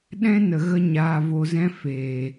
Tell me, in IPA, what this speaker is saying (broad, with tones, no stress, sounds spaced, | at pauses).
ɗ ɛ̃˦ n ə˨ ɣ ə˧ ɲ aː˧ v o˧ z ɛ̃˦ f eː˨